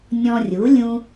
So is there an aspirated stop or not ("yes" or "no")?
no